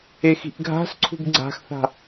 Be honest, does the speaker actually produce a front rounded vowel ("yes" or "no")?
no